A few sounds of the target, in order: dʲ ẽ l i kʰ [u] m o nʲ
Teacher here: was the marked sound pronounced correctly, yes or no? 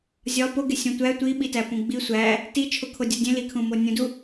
no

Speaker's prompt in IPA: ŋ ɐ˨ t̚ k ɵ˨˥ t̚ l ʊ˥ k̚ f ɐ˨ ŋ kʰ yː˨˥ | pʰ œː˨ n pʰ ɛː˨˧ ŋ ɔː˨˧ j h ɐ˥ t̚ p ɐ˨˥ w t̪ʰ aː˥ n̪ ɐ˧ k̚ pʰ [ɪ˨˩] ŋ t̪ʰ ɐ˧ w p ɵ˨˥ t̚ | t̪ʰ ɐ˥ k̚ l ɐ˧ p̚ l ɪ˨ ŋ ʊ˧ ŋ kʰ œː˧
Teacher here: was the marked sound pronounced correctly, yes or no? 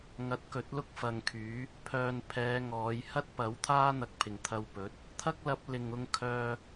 yes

